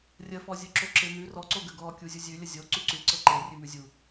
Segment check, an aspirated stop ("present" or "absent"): absent